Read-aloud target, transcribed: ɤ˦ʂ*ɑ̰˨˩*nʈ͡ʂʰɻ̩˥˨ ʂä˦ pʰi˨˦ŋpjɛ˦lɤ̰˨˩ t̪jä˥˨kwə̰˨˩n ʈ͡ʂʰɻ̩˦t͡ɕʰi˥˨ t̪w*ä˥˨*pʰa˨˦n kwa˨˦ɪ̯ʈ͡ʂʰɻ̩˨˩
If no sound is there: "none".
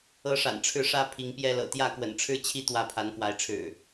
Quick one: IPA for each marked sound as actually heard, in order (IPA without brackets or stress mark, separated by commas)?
a̰˨˩, ä˥˨